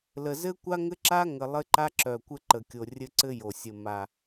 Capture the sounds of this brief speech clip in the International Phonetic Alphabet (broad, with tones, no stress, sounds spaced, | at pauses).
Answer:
l ə˨ z ɘ˦ kʷ a˦ ŋ ɘ˦ ǁ a˦ ŋ ə˨ lˠ ɘ˦ ǃ a˦ ǁ œ˨ kʷ ɘ˦ ǃ ə˨ kʲ o˨ rʲ ɘ˦ ǀ ɘ˦ j o˨ sʲ ə˨ m a˨